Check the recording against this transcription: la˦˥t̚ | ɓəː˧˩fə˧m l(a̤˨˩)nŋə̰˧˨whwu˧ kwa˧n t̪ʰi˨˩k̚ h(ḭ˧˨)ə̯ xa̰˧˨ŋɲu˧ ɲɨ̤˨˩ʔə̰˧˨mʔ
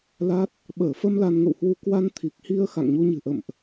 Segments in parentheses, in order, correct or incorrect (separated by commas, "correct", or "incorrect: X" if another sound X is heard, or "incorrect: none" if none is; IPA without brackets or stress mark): incorrect: a˧, incorrect: i˧